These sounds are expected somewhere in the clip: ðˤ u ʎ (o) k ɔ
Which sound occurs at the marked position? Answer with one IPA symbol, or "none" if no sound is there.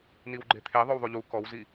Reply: u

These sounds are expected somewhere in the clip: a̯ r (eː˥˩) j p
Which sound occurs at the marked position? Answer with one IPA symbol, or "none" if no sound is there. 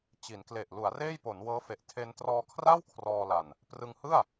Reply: eː˥˩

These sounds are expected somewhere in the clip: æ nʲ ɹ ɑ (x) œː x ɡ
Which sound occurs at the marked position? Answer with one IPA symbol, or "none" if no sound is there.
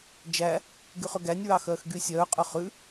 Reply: x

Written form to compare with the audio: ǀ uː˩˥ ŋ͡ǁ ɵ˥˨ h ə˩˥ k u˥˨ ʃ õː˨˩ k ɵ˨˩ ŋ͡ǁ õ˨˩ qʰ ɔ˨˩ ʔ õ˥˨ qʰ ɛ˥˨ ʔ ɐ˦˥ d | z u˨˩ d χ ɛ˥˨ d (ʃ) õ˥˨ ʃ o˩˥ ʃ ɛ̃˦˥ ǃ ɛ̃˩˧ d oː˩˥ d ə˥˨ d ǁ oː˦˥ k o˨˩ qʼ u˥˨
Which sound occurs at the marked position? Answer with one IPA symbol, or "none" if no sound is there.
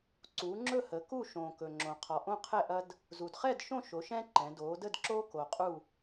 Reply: ʃ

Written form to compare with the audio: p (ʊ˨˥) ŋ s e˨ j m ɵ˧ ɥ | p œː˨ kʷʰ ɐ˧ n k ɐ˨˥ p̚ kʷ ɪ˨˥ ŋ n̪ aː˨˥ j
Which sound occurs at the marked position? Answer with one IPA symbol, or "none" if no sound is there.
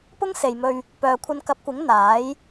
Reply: ʊ˥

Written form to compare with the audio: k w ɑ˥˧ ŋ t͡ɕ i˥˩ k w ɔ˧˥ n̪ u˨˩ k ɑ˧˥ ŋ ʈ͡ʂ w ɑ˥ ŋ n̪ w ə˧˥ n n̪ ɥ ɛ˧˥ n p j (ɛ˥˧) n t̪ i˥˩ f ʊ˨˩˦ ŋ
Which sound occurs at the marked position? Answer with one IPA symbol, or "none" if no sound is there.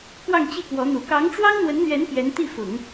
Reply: ɛ˧˥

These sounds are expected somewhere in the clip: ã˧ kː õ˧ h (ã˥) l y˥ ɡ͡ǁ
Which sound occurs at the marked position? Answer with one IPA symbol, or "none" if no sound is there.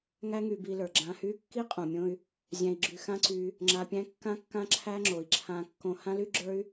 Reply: ã˥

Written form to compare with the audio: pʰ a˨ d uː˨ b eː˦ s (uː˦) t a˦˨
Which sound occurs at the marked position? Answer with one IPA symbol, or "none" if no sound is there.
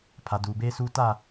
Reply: uː˦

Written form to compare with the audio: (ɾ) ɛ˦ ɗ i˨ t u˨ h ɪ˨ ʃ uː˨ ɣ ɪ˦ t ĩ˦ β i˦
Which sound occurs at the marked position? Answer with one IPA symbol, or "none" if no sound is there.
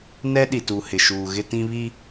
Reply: n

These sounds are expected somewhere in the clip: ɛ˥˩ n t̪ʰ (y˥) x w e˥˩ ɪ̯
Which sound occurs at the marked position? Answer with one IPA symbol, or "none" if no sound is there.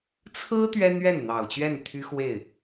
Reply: y˥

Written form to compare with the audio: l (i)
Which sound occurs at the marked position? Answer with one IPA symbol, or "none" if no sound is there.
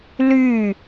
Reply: y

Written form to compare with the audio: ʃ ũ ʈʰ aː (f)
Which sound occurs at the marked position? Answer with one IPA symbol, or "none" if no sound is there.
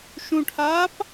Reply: p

